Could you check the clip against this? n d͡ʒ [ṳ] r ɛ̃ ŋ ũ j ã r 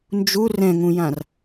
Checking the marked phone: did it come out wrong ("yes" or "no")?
yes